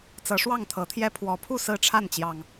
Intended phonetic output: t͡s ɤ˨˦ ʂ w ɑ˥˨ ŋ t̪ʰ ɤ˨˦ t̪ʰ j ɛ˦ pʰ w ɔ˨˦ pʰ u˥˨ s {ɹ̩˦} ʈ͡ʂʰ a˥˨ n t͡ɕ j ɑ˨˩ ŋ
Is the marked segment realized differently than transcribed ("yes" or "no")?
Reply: yes